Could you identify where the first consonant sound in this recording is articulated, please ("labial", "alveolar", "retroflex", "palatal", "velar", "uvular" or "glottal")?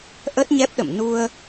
glottal